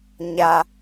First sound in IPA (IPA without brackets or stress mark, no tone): ɲ